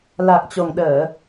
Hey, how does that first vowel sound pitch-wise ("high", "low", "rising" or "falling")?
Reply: low